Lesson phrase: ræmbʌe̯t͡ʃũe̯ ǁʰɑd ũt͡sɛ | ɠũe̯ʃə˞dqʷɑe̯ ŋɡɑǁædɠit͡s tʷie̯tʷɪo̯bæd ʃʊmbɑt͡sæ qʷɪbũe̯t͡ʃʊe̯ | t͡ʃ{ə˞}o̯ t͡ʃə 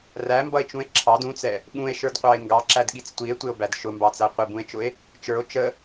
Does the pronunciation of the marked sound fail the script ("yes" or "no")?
no